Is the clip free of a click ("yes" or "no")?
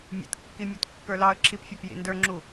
no